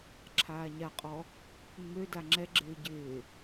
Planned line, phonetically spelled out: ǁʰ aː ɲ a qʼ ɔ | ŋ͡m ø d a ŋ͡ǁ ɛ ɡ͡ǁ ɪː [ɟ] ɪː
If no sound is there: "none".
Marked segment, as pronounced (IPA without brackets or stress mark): ɟ